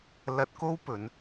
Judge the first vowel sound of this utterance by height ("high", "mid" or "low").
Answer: low